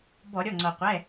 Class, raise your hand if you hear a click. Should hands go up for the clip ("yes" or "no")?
yes